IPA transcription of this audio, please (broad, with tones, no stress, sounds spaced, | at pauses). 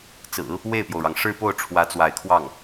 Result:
t͡s ɹ̩˨˩˦ | w e˥˩ ɪ̯ p j o˩ ʊ̯ ɻ ɑ˩ ŋ ʂ ɻ̩˥˧ p o˥˩ ʊ̯ ʈ͡ʂʰ w ä˧˥ t͡s w a˧˥ ɪ̯ kʰ w ɑ˥˩ ŋ